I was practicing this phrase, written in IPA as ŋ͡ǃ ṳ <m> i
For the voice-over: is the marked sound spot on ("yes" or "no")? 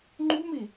yes